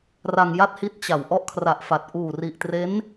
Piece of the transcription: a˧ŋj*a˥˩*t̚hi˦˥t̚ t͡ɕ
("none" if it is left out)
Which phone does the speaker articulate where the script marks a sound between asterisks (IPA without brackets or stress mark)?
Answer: a˥˩